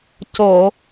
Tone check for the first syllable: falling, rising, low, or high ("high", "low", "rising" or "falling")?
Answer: low